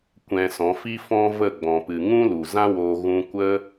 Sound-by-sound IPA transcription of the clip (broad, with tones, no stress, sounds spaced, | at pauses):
kʷ ɛ̃˧ s ɔ̃˨˦ f i˦ f ɔ̃˦ v ə˦˨ ɡ͡b ɔ̃˨ p ɨ˨ ŋ ũ˦ l u˨ z ã˦ w oː˧ ɣ ũ˧ kʷ ə˦